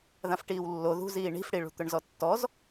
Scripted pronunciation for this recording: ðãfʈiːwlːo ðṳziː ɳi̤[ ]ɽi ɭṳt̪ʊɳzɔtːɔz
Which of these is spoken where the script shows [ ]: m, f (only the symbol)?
f